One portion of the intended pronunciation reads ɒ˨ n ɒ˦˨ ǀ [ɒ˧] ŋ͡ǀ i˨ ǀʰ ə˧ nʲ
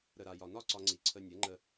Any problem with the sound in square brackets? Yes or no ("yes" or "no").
no